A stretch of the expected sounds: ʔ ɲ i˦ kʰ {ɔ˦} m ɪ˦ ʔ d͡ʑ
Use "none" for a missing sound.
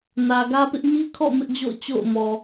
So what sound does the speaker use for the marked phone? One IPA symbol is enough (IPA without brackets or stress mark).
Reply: ɔ̰˦˨